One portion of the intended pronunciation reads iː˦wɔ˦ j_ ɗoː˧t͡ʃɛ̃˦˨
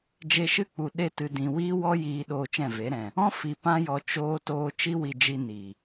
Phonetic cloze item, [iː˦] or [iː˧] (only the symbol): iː˧